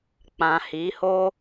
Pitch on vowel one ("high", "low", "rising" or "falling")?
low